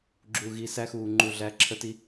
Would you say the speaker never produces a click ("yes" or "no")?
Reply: no